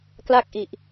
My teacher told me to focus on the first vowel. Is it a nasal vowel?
no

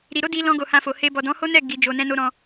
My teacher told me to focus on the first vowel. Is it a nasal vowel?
no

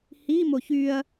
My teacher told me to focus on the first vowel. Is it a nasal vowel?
no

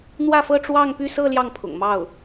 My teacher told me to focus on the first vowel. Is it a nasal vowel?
no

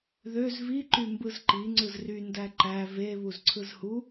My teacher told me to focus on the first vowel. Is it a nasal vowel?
no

